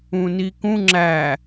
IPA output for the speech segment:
ũ n i k ũ ŋ͡ǁ æ

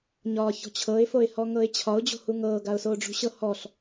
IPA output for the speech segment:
ɲ ɒː ç ɔ̤ t͡ɕʰ ɤ ɪ̯ f o ɪ̯ h ɔ ŋ ɤ ɪ̯ t͡ɕʰ ɒ ʊ̯ d͡ʑ o̤ h u ŋ ɤː ɡ a ʊ̯ s oː ɖ͡ʐ ṳ ɕ ɤ h ɔ ɬ

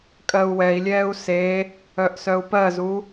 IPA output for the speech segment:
kʼ ɜ u̯ w ɛ i̯ lʲ ɛː u̯ s e | œ ʔ s œ u̯ p ɜ z u

